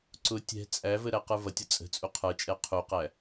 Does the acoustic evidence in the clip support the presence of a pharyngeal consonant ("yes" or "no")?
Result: no